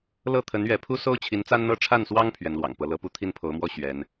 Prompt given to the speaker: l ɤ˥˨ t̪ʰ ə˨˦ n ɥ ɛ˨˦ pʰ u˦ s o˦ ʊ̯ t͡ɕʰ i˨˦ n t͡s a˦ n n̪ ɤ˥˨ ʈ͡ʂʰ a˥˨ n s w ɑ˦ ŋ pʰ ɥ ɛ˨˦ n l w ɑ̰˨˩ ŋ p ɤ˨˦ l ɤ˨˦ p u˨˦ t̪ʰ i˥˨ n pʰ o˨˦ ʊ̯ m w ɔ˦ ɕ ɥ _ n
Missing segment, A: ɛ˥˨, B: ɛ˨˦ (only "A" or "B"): B